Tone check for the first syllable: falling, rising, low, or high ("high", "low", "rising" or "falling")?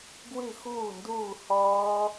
falling